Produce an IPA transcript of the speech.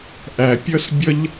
ʔæ˨ pʲʌ˦sbʲʌ˦ʎ

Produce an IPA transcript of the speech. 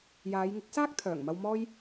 jaː˨˧jŋɪ˨˥k̚saː˥k̚t̪ʰœː˨˩ŋ mɐ˨w mɔː˧j

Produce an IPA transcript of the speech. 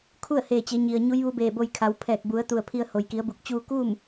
kʰu˥˨ə̯heː˧˩t͡ɕe˩˧ ɲi˩ə̯ ɲu˧˥jʋu˧˥beː˧˩bo˧j kʰa˩˧wpʰɛː˧˩k̚ bu˩˧ə̯ t̪u˧˩ə̯ pʰi˧ə̯ ho˩jki˩˧ə̯bu˧˩k̚ t͡ɕuː˧kuː˥˨m

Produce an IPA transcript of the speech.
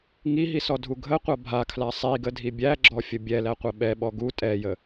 ŋiɦisɔdʱu ɡʱəqʷa bʱakʰla sˤiɡədʱi bʲæɡ͡ǁɔfʲə bʲɛlæqʷə ɓɛɓɔ ɡu tʼɛjə

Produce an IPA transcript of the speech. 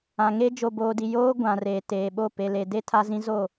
ã˨ŋe˦ d͡ʒo˨boː˨di˨ joː˦ ɡʷã˨ reː˨teː˨ɓo˦˨ pe˨le˨ de˦ tʰa˦zĩ˦zo˦˨

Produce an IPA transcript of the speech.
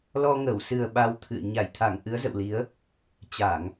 lɔ˧ŋə˧˩w sɨ˨˩ə̯ ɓa˧wt̪ʰɨ̰˧˨ə̯ ɲa˧˩jt̪ʰa˧˩ŋ ʔɨ˨˦ə̯zə̰˧˨wli˨˦ə̯ | t͡ɕa˧˩˨ŋ

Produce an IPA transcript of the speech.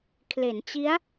kʰle˩˦nt͡ɕi˦˥a̯

